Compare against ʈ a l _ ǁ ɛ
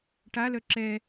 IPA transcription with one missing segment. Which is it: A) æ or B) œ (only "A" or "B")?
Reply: B